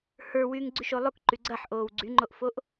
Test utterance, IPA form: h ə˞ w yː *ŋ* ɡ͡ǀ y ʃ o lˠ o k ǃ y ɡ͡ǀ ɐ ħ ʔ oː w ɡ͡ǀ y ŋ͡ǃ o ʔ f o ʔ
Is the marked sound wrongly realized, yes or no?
no